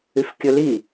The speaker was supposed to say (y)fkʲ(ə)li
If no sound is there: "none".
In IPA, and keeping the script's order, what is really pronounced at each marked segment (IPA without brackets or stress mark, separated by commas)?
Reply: y, ɵ